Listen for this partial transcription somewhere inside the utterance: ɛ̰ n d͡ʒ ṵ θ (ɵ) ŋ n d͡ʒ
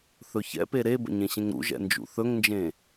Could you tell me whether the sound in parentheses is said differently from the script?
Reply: no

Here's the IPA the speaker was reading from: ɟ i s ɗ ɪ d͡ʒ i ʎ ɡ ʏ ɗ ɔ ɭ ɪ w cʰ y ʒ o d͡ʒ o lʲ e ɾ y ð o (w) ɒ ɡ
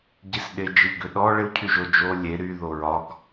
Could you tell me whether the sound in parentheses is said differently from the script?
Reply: yes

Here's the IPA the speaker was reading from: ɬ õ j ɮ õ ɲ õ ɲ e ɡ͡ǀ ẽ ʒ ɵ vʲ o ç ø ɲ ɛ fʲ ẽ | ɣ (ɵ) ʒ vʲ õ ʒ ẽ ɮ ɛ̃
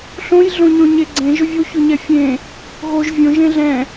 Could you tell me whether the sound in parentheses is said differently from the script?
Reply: yes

